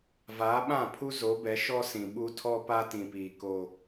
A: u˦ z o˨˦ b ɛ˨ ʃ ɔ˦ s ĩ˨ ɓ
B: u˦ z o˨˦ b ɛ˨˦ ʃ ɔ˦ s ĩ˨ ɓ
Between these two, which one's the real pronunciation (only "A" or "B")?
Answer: B